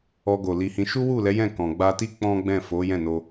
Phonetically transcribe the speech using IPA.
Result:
ɔ˧ ɡ o˨ l i˧ h ĩ˧ ʃ u˦ w u˦˨ l ɛ˨˦ j ɛ̃˦˨ k ɔ̃˨ ɡ͡b a˧ t i˦ k͡p ɔ̃˦ ɡ͡b ɛ̃˦˨ f o˨˦ j ɛ̃˦˨ n o˧

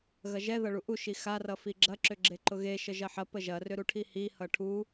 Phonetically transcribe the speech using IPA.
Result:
ɣ ɐ ʒ ɛ ð ʌ ɭ u ʔ u ʃ i x a r ʌ f i ɡ͡ǁ ɐ ǁ ʏ ɡ͡ǁ e ǃ ʊ ɣ e ʃ ə ʒ ɐ ħ ɐ p ə ʒ ɐ r ʏ ɾ u ʈʰ i h i h ʌ ʈʰ u

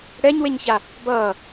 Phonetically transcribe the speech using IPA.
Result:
ɽ ɛ ɲ w e ɲ ç a | b ʌː

